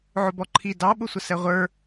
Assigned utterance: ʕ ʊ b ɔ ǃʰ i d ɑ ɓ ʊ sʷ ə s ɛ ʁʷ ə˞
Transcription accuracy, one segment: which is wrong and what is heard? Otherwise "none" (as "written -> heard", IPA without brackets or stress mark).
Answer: none